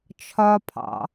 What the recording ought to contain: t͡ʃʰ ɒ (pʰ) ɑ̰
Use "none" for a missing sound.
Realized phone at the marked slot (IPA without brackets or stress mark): pʰ